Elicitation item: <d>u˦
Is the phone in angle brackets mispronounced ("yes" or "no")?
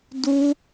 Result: no